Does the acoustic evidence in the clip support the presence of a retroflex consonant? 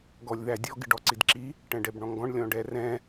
yes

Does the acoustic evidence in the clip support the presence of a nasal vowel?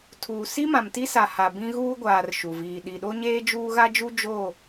yes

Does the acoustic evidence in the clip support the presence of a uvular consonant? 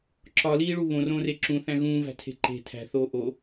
no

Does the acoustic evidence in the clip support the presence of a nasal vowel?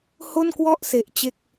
no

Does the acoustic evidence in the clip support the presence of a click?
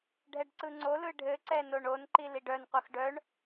yes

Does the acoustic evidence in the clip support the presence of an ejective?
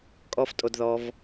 yes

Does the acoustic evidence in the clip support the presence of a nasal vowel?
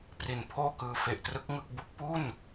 no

